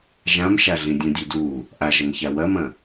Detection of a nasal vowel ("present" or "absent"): present